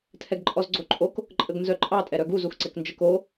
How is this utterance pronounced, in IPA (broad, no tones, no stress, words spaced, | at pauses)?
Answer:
tʰɛɡǃʼɔzɡ͡ǀoǃʼok | ǃʼəɡnzœǃʼɑ tʼɛɾœɡuz uxǀɛknd͡ʒək o